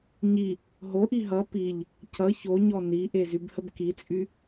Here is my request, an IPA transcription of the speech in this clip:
ɲi | ɦoʔi ɦʌ piʎ | cʌ çoɲɔ niʔe zybhəbkit͡sʼy

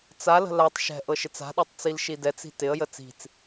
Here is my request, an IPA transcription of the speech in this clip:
t͡salə̤ latˤ ʃɛ̤ ʔɤʃɪt͡sa̤ɗotˤ t͡silʃidɛt͡si̤ tɪə̯jə t͡si̤t͡s

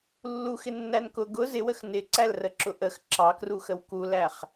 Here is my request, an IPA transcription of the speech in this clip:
lːuxɪnːæn kʊ ɡʊ zɪwəx nɪǀælrəǁʊ ʔəx ǁɑkruxəw kulæχ

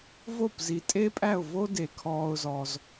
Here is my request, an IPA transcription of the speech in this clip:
vo˥˩pzi˩tʼe˥pʼæ˥˩ʊ̯ vo˥ de˩kʰɔː˧ʊ̯zɔ˩z

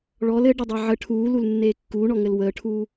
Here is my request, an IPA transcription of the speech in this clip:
ɭɔl ɘ ɖɘdˤeʕə ʈʰuːlulnːeː kːuːɳɔŋɘl wəːʈʰuː

